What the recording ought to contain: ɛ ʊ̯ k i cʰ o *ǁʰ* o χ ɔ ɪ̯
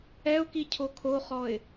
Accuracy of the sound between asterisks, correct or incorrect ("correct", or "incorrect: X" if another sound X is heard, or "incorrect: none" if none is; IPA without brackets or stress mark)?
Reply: incorrect: kʰ